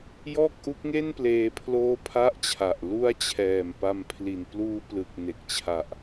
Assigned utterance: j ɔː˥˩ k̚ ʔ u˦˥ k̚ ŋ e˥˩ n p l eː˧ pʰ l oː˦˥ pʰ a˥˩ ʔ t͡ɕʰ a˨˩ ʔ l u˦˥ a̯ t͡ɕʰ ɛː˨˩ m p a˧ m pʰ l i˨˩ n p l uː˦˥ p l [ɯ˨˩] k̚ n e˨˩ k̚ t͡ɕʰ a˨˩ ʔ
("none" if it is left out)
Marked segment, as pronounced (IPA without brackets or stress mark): ɯ˨˩